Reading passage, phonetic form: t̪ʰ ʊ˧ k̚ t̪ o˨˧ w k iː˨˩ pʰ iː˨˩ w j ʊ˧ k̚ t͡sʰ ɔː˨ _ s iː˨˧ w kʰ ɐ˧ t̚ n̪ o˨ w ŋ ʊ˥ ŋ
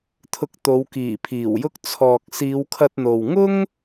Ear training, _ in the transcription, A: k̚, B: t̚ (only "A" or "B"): A